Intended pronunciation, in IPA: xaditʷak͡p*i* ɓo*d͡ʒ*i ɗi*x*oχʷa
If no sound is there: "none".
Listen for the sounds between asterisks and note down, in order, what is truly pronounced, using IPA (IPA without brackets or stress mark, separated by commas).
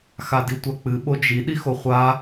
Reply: ɨ, d͡ʒ, x